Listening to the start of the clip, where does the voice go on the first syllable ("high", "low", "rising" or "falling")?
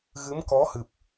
rising